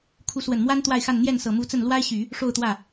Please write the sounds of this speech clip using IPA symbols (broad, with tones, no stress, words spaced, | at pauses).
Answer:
kʰu˧˥swə˨˩nmwa˥n t̪wa˥˧ɪ̯xa˥˧n n̪jɛ˥˩nsɤ˨˩mu˧˥t͡sə˥˩n lwa˥ɪ̯ɕy˨˩˦ | ʂo˥˧ʊ̯t̪wä˥˩